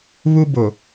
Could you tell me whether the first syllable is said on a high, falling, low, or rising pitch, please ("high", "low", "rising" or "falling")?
high